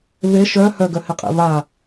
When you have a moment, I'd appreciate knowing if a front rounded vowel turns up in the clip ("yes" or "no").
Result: yes